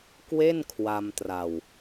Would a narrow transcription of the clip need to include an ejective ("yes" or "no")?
no